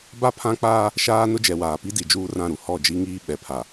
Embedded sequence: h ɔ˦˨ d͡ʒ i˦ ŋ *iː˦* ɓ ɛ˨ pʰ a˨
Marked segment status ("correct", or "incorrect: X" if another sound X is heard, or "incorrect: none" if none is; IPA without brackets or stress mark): correct